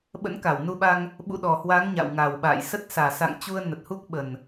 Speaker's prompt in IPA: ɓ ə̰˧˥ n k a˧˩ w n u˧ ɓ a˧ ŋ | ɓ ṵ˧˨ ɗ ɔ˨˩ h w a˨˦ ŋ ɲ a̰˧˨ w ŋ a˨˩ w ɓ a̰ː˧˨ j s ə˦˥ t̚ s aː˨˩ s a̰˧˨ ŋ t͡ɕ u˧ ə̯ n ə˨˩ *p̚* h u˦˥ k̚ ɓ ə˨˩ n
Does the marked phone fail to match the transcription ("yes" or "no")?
yes